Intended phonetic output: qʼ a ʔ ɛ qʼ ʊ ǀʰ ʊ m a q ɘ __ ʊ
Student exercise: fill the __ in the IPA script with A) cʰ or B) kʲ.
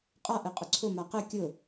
B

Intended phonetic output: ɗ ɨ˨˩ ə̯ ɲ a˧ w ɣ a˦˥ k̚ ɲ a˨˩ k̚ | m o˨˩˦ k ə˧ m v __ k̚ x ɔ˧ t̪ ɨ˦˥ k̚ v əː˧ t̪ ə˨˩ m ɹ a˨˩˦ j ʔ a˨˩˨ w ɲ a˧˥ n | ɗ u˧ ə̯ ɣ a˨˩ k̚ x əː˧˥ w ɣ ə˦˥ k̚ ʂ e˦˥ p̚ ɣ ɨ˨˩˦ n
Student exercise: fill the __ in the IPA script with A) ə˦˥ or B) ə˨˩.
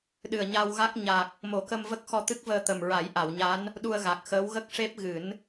A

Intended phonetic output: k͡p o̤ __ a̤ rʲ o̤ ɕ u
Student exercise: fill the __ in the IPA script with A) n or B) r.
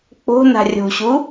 A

